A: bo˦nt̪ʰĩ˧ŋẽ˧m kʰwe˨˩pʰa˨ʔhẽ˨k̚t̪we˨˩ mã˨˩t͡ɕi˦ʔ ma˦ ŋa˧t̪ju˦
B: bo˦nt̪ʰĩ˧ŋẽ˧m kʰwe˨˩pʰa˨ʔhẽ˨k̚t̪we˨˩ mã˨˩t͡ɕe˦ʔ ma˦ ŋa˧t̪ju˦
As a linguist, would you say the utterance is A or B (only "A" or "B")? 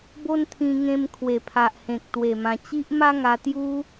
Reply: A